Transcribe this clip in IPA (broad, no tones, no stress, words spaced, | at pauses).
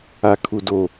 akʰudo